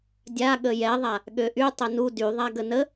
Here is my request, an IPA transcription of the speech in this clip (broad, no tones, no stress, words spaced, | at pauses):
dʲa ɠəjɛðˤa | ɠøʔy tˤɛnu dyðˤa ɡənə